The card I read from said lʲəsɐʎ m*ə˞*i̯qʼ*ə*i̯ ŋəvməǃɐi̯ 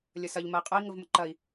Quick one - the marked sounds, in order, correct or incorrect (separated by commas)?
incorrect, correct